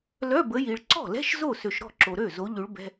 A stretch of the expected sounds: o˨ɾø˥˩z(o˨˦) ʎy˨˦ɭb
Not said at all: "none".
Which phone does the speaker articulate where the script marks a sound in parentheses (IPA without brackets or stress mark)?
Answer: o˨˦